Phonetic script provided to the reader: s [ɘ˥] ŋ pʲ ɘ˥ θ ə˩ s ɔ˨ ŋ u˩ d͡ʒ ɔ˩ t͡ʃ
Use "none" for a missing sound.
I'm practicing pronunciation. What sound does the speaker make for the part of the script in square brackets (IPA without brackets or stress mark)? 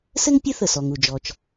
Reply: ɘ˥